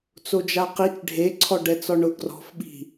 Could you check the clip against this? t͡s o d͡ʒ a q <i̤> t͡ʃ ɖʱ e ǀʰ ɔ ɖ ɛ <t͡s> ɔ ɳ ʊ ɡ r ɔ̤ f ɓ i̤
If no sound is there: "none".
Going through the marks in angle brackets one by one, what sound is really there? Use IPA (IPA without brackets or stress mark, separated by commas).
i, t͡s